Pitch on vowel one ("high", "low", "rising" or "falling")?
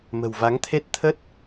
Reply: low